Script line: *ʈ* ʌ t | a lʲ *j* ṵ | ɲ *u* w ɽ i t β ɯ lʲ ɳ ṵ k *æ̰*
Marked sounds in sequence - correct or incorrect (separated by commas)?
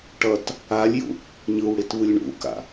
correct, correct, incorrect, incorrect